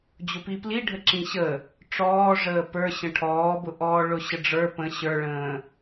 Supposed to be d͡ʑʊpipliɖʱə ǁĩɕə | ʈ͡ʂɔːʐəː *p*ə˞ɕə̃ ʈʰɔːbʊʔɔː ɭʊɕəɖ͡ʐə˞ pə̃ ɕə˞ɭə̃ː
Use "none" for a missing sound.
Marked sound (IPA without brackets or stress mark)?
p